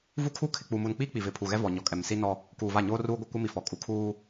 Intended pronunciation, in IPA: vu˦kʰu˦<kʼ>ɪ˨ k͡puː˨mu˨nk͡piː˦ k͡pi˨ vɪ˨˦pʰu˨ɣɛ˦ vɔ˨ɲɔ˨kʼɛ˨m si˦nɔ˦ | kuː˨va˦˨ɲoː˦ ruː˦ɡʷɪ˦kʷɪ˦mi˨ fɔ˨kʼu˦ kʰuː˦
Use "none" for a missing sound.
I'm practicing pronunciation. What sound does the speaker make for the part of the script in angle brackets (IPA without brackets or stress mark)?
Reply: kʰ